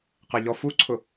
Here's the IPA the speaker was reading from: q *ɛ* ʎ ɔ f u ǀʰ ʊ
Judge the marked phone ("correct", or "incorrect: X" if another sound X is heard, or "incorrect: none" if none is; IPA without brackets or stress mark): correct